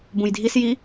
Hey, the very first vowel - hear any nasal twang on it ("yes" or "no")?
yes